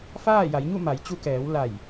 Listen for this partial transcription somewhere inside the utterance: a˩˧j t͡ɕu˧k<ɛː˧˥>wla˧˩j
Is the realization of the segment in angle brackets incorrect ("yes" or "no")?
yes